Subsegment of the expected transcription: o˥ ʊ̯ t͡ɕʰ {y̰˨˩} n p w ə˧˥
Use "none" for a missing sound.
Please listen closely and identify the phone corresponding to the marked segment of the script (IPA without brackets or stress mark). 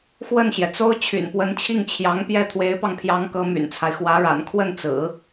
y̰˨˩